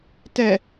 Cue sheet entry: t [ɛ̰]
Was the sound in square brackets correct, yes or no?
no